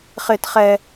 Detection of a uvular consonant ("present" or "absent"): present